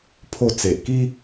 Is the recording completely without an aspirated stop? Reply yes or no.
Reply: no